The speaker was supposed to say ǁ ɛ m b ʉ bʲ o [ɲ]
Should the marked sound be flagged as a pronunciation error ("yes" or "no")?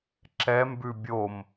yes